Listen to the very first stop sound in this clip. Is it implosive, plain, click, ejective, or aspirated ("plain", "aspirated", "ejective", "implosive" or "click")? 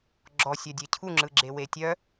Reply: click